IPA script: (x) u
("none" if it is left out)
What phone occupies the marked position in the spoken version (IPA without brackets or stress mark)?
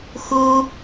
x